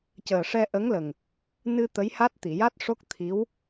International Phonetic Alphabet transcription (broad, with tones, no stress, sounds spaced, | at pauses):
c əː˨˩ ʂ ɛ˧ ʔ ə˧˥ ŋ l ə˨˩ ŋ | n ɨ˧ t̪ ə˧˥ j h a˦˥ t̚ t̪ i˨˩˨ j a˦˥ t̚ ʂ o˦˥ k̚ t̪ʰ i˧˥ w